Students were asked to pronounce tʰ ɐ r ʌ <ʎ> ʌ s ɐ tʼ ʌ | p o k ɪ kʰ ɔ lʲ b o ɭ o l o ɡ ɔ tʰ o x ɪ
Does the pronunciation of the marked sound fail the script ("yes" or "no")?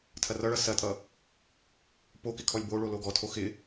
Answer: yes